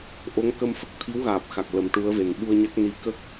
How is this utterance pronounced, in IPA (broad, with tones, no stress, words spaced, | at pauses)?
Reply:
ʔo˧˥ŋkə˧mfə˦˥k̚ t̪ʰi˧˥wɣaː˨˩p̚xa˨˩k̚ lə˨˩˦mʈu˧˥ə̯ve˨˩n ɓu˧ə̯ɲa˦˥k̚ni˧˥ kə˦˥k̚